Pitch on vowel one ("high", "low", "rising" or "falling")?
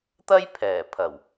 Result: high